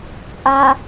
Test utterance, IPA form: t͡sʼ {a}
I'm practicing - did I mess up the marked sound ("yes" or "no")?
no